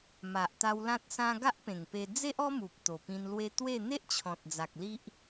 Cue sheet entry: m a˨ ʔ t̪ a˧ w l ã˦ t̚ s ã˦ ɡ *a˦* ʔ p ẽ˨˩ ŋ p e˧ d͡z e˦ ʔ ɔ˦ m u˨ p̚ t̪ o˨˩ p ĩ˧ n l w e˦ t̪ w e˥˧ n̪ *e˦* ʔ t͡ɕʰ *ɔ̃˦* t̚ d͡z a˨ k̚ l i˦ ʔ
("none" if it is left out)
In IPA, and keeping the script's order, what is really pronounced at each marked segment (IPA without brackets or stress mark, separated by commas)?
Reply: a˦, e˦, ɔ̃˨